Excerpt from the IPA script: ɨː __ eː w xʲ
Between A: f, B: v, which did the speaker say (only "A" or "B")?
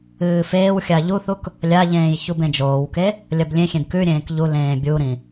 A